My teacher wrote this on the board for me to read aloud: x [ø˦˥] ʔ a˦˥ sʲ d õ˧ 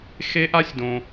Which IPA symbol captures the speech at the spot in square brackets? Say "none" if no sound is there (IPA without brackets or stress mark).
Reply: e˦˥